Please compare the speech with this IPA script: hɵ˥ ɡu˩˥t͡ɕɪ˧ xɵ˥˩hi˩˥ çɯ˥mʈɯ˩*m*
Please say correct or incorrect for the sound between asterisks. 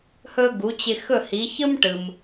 correct